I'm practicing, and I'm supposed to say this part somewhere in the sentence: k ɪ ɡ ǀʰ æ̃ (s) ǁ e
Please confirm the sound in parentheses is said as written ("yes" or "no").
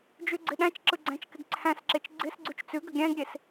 yes